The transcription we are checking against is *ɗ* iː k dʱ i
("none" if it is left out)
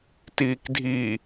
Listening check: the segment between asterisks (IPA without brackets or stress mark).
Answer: t